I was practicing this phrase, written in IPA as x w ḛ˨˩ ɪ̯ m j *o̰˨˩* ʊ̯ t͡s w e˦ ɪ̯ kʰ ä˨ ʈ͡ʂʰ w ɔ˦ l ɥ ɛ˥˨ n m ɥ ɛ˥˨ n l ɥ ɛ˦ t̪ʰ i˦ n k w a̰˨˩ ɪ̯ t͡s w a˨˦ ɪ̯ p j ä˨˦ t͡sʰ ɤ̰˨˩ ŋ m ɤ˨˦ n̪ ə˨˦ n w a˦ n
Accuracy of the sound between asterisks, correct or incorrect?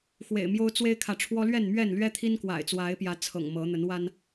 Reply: incorrect